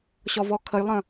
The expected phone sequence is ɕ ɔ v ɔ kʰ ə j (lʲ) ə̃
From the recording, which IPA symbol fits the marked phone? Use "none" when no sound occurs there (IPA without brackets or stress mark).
lˠ